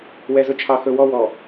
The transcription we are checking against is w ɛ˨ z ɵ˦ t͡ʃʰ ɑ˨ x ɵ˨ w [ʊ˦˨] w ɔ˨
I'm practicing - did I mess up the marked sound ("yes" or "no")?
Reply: yes